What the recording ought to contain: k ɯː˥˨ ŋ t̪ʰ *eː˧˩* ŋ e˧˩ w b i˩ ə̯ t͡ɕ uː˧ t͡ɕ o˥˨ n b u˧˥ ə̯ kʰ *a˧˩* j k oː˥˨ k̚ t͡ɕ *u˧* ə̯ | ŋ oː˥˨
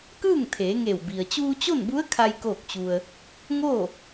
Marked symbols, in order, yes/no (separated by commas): no, no, yes